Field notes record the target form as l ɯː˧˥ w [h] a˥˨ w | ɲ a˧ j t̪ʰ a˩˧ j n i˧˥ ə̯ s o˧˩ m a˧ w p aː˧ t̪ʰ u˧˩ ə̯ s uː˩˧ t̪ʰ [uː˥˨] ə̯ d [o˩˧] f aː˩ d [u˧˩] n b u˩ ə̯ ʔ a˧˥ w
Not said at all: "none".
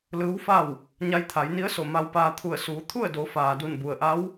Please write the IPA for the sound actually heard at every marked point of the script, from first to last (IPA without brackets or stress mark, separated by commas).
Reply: f, u˥˨, o˩˧, u˧˩